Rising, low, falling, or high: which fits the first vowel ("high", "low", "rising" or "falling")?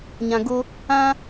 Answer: low